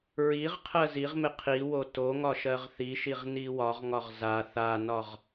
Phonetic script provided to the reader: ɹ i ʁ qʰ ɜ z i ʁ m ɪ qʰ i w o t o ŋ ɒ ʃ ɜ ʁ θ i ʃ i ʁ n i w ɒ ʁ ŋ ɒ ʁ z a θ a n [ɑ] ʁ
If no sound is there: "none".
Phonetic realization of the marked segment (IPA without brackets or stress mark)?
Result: ɒ